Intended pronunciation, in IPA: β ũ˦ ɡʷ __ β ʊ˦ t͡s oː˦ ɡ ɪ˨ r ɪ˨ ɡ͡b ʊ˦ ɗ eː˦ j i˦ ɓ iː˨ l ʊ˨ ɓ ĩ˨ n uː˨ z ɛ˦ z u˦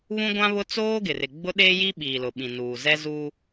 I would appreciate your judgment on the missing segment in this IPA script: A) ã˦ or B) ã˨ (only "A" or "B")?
A